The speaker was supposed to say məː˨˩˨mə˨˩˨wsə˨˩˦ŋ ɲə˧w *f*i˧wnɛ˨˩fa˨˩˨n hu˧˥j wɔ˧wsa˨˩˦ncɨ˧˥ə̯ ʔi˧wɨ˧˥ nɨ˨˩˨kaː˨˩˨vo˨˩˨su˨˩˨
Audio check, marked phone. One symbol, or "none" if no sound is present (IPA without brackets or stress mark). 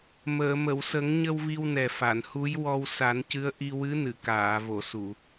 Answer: v